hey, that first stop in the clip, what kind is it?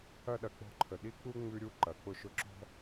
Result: implosive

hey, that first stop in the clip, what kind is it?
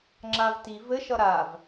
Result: click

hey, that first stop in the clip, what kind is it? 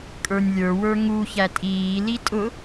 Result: ejective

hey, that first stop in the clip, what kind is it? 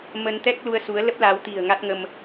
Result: plain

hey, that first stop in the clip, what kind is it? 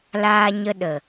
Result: implosive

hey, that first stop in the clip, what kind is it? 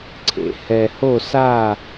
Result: click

